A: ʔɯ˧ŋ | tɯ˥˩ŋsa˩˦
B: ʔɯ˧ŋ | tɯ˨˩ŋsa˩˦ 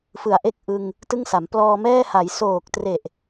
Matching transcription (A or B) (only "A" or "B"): A